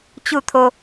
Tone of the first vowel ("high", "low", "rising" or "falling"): falling